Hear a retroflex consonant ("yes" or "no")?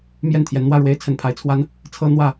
yes